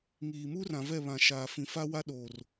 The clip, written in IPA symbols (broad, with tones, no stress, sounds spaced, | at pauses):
ŋ iː˨ m u˦ r ã˨ v ɛ˦˨ β ã˨ ʃ aː˨ f ĩ˨ f a˦ w a˦ ɗ oː˨ r